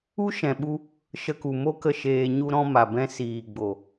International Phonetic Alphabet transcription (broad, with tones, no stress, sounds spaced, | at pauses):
u˦ ʃ ɛ̃˨ ɓ u˧ | ʃ ə˧ k u˨ m o˦ k ə˧ ʃ eː˨ ɲ u˧ ɾ ɔ̃˧ m a˨ b ɛ̃˧ s iː˨ ɡ͡b o˨